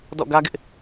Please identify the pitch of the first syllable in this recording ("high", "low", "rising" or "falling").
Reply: falling